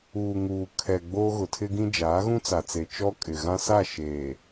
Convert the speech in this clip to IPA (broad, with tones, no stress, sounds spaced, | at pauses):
uː˨ ŋ uː˨ kʰ ɛ˨ ɡ͡b oː˦ ɣ ʊ˨ tʰ ɪ˦ ɡ ĩ˦ d͡ʒ aː˨˦ ɣ ũ˦ t͡s a˨ t͡s e˨ t͡ʃ ɔ˦ kʼ ɪ˨ ɣ ã˦ s a˦˨ ʃ eː˨